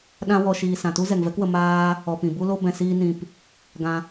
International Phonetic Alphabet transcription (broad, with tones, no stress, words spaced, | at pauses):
ɗã˦wɔ˧ ʃiː˧sã˨ tu˦zɛ˨ŋvɛ˦kwə˧ maː˦ | ɔ˧pĩ˨ bu˦lo˦ bɛ̃˧siː˦ nĩ˧p | ɡã˦